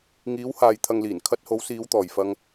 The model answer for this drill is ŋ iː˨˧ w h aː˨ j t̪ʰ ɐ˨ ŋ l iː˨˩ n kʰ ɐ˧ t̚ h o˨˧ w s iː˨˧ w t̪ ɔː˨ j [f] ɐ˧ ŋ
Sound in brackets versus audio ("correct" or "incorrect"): correct